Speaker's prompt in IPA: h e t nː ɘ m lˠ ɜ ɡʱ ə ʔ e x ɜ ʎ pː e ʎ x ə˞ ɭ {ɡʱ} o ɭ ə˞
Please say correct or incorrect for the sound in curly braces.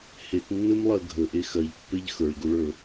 incorrect